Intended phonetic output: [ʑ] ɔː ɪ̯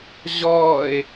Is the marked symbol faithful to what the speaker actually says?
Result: yes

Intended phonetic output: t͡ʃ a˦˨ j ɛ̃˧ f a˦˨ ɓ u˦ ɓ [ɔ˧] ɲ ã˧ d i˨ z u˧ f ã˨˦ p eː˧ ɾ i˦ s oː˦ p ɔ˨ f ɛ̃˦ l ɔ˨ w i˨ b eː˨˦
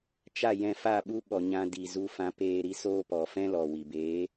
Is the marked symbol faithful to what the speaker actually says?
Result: no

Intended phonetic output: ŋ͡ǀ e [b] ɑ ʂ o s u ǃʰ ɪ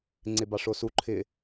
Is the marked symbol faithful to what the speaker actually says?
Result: yes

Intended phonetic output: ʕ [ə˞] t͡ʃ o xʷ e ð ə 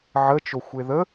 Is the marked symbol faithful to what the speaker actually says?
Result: no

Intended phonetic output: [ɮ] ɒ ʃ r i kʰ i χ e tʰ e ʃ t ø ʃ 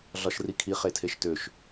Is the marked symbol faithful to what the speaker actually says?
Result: yes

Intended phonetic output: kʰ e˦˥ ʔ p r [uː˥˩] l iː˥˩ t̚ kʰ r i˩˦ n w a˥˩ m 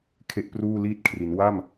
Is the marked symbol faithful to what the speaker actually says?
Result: yes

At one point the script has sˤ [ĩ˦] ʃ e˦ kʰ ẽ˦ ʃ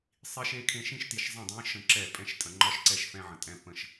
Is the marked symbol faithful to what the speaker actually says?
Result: no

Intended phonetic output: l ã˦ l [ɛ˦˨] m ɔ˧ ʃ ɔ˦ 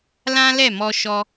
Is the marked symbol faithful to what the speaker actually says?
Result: yes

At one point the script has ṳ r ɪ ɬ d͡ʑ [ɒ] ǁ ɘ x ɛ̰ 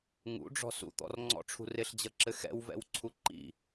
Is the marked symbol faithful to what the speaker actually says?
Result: no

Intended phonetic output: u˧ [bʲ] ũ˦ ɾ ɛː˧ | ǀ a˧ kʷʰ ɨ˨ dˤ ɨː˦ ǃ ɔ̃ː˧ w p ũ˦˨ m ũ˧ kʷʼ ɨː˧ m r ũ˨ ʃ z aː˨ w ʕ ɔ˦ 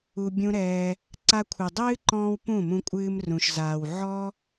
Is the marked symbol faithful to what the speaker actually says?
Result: yes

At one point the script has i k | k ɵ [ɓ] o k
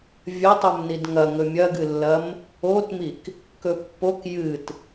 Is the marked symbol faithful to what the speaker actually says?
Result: no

